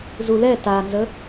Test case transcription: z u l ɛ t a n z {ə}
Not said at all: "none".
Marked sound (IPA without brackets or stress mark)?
ə